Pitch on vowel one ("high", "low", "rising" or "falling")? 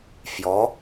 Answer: rising